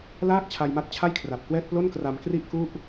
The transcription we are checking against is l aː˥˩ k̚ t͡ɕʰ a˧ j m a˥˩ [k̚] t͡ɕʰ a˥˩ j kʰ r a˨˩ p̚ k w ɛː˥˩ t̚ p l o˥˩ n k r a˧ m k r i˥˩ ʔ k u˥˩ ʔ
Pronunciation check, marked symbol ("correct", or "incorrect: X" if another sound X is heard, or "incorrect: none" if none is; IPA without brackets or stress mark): incorrect: t̚